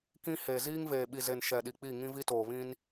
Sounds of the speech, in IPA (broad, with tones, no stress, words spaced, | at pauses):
kĩ˦he˨ ziː˦ŋveː˨ ɓi˨ze˨n ʃɛ˨ɗi˨ k͡pi˦˨ŋĩ˦vi˦toː˨ βĩ˦n